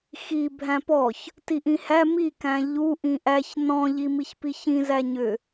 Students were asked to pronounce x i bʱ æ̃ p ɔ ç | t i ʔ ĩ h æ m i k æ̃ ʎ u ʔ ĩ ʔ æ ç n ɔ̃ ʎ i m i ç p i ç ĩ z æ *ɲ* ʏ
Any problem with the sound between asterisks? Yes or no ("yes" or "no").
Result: no